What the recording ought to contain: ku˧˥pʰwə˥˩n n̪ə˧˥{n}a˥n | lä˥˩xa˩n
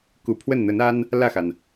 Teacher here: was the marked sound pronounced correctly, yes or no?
yes